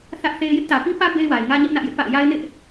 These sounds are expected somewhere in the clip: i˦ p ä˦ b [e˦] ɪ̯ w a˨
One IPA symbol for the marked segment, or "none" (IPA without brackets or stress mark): e˦